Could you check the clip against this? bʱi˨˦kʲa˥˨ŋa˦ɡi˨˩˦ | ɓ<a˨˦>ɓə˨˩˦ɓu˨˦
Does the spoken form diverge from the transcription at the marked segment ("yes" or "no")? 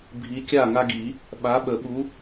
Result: no